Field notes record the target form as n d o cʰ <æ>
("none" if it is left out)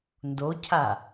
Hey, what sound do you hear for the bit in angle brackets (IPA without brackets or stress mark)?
a